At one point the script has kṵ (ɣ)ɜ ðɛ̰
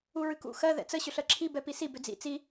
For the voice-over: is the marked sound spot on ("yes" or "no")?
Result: no